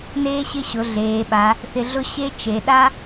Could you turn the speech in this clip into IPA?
neː˥ɕɪ˥˧ɕʊ˩˧ ɮeː˩˧ɓa˩˧ | θɪ˧ɮʊ˥ ɕe˥t͡ʃe˩˧ɗa˥

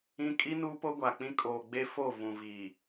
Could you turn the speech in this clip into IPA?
ĩ˦ kʼi˦nuː˦po˦ ɡʷa˨k͡pĩ˦ kʼoː˨ ɡ͡be˦ fo˦˨ vũ˨vi˨

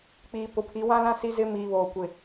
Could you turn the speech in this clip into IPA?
k͡piː˨ pʊ˨pʰi˨˦ wã˦lã˦ si˦zɪ˦ miː˨βoː˨ kʷɪ˨

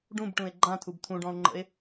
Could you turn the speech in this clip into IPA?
ɖũbʈũe̯ ɡ͡ǃãtʰub t̪ʰũɖɔ̃o̯ŋ͡ǃə̰e̯

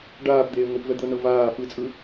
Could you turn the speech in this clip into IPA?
ɖaːpd̪eː ŋʷipvɛd̪ɤnɤ vaː fɯt͡sʼɯ

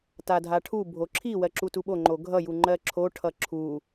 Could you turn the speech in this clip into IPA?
tadʱaʈʰu bʱoǁʰi wɜǁutuɓo ŋ͡ǃoɡʱʌ juŋ͡ǃɜǁʰo ʈʰʌǁʰu

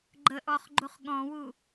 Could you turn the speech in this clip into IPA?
ɡ͡ǃəʔɔχ ɡ͡ǃuχɠɔ̃wu

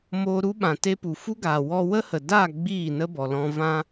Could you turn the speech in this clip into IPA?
moː˧ɾu˦ɓã˨ te˧pu˨ fu˦ɡaː˨ wɔ˧wə˦hə˨daː˦˨ ɡ͡biː˦˨ nə˦bɔ˨lɔ̃˧vã˦

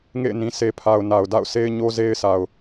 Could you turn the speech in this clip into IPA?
ŋḛ˦˨ɪ̯nĩ˨ sʰe˨pʰa˨ʊ̯na˨ʊ̯ da̰˦˨ʊ̯se˦ɪ̯ ɲo˦ze˦ɪ̯sʰa˨ʊ̯

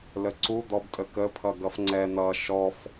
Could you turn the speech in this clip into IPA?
ləǀu d̪ɔbtʼəkə pʰʌɡʌfŋ͡ǀɛ n̪ʌ ʃɔf

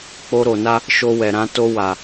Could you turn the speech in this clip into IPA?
k͡po˧ɾo˨na˧ | ʃo˧wɛ˨ɾã˧ to˧wa˨

